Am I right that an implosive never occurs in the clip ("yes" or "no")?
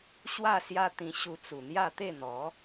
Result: yes